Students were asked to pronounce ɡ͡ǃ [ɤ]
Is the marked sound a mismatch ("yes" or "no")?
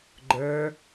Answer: yes